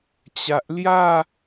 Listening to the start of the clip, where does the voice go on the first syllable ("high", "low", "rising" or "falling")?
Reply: low